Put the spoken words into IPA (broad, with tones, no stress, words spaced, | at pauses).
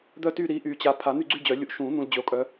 d̪œ˦˨ty˦˨ ɾi˨˦ʔy˨˩˦t͡ɕa˨ pʰa˨˩˦n̪y˦˨ɡ͡ǀy˦˨ d͡ʑœ˨˩˦lʲu˨˦ʔ ʃũ˨˩˦ n̪ũ˨ld͡ʑø˨o̯ kʼœ˨˦